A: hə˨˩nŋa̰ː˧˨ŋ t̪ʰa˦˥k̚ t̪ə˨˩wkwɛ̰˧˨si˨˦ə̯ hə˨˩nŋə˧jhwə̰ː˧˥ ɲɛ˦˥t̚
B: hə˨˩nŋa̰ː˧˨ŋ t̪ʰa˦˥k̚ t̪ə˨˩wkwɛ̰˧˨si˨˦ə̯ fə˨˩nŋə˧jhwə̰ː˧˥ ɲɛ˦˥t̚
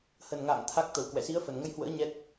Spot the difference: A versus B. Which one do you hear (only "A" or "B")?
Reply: B